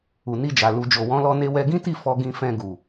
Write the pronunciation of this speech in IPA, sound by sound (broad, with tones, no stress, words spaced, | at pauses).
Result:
u˨ni˧d͡ʒa˨ lu˨d͡ʒo˨wɔ̃˨˦lɔ˧ ne˧wɛ˧ɡĩ˦ti˦˨ fɔ˧ɡĩ˧fɛ̃˧ɡu˨